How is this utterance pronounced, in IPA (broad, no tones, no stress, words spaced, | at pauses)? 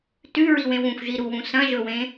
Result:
tʉɹiwẽw ũxʷʒiɾuwũ sɐ̃ʒɵwẽ